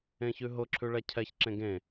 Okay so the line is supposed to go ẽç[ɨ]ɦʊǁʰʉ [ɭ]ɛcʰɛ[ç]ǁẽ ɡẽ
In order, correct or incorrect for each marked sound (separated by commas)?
incorrect, correct, correct